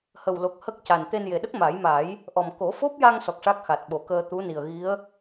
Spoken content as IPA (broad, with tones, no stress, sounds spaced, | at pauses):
h ə˨˩ w l o˨˩ k̚ h ə˦˥ k̚ c a˨˩ n t̪ e˧ n j e˨˩ ɗ ə˦˥ k̚ m a˨˩˦ j m a˨˩˦ j | ʔ ɔ˨˩ m k o˨˩˦ f o˦˥ p̚ j a˧ ŋ s ɔ˨˩ k̚ ʂ a˦˥ k̚ x a˨˩ t̚ ɓ o˨˩˦ k əː˧ t̪ u˧˥ n i˨˩ ə̯ ɣ i˧˥ ə̯